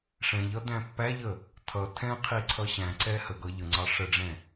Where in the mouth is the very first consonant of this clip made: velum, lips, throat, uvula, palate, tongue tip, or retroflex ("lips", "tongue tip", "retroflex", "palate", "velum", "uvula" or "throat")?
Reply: retroflex